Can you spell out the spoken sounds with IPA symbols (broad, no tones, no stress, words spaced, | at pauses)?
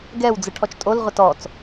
ɡɛw d͡zɯʈʰɔt͡ʃtʼol ʁʷɛtɔt͡s